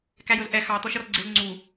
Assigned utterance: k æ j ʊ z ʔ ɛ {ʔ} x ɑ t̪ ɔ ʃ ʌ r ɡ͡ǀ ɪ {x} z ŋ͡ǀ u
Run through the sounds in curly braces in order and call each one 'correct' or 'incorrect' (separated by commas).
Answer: incorrect, incorrect